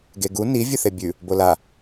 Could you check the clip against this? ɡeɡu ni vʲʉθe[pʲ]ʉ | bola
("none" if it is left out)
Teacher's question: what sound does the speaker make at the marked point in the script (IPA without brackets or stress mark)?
bʲ